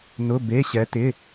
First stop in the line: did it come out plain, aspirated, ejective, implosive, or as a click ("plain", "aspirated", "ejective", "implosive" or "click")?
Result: plain